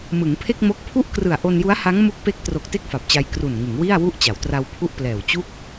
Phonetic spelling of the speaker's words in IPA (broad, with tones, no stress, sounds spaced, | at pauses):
m ɯ˩˦ ŋ pʰ e˥˩ k̚ m o˦˥ k̚ pʰ u˥˩ ʔ k r ɯ˨˩ a̯ ʔ o˧ n j u˦˥ a̯ h a˦˥ ŋ m u˦˥ k̚ p e˦˥ k̚ t r o˨˩ k̚ t e˥˩ k̚ f a˨˩ p̚ t͡ɕ a˧ j k r u˨˩ n ŋ ɯ˩˦ ŋ w i˥˩ a̯ w u˥˩ ʔ t͡ɕ a˩˦ w t r a˧ w pʰ u˥˩ ʔ p l ɛː˨˩ w t͡ɕ u˥˩ k̚